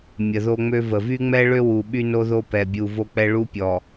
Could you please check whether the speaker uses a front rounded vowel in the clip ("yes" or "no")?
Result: yes